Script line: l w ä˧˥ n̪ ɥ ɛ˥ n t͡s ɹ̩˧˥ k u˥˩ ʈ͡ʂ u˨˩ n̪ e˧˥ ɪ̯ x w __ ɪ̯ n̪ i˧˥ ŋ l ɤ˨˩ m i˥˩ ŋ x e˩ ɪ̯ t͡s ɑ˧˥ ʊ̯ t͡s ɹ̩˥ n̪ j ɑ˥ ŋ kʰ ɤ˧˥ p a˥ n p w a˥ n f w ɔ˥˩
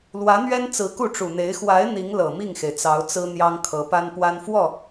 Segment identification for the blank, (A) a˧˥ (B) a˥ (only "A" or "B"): A